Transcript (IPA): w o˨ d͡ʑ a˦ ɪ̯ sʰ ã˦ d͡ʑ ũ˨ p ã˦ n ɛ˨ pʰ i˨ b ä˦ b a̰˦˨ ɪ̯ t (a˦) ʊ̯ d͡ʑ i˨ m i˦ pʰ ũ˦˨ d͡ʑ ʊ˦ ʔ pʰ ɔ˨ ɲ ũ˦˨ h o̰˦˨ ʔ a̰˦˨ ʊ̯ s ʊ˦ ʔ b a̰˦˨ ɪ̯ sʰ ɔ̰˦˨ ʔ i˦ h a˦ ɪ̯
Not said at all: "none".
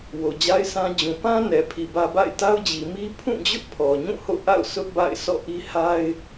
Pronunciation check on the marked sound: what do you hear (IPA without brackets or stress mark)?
a˦